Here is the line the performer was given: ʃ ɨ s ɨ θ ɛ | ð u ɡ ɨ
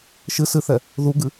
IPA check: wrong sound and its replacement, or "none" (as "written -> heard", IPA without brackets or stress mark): none